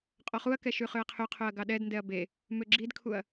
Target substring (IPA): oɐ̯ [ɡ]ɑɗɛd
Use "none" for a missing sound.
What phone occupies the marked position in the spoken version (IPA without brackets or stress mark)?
ɡ